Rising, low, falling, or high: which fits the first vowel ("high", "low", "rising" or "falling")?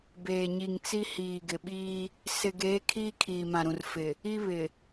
low